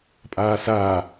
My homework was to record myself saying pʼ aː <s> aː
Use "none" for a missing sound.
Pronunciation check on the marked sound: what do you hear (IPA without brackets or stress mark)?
s